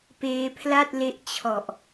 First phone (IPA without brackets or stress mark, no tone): p